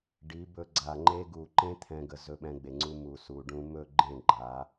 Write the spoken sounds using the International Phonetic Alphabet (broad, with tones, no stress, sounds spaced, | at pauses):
ɖ i˨˦ b ɵ˧ ɡ͡ǀ a˨ ŋ͡ǃ e˧ ɡ u˨ ǃ ẽ˧ t̪ʰ ɛ̃˦ ɡ ə˧ z ɵ˧ ɓ ɛ̃˧ ɡ͡b e˨ ŋ͡ǀ u˧ m u˨ s u˨ ɖ ũ˧ m ɵ˦˨ ɡ͡ǃ ẽ˦˨ ɡ͡ǃ a˨˦